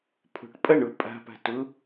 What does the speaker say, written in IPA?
pʰ o̤ ʈ pʼ ɐ ɳ ʊ pʼ a̤ p a̤ t ʊ

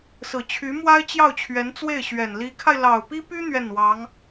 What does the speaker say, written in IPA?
s ɹ̩˨˩ t͡ɕʰ y˧˥ m w a˥ ɪ̯ t͡ɕ j ɑ˥˩ ʊ̯ t͡ɕʰ ɥ ɛ˧˥ n t͡s w e˥˩ ɪ̯ ɕ ɥ ɛ˨˩ n l i˧˥ kʰ a˧ ɪ̯ l ɑ˨˩ ʊ̯ p i˥ p y˥ n̪ ɥ ɛ˥˩ n w ɑ˧˥ ŋ

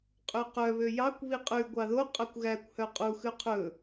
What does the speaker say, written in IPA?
qʼ ʉ q œ β ø j ɑ kʷ β i qʼ ʉ ɡʷ ɑ ð o qʼ œ kʷ ɣ æ kʷ h œ qʼ u x ʉ qʰ ɵ

